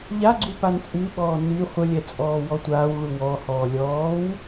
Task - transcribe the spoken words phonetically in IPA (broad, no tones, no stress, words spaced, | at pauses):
ʎaɡ͡ǀu pant͡sʼʉɓɔː ny χʷəlʲɛ t͡sʼɔːwɔtʷaːwɭu wɔhɔː lʲɔːw